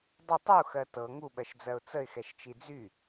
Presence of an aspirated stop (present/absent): absent